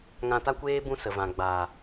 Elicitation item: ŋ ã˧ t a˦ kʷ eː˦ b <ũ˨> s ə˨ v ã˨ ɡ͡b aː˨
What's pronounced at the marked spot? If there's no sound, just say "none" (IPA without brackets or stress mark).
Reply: ũ˦